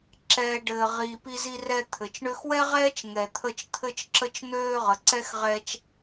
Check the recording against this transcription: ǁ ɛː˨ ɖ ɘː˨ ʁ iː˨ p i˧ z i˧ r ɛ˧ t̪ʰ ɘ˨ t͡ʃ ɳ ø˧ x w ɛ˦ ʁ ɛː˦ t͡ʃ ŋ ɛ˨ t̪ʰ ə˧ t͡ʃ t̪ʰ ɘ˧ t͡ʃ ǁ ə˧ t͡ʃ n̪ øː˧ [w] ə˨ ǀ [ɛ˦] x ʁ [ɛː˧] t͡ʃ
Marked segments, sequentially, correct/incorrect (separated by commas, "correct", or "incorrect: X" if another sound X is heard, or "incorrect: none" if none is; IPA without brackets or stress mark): incorrect: ʁ, correct, correct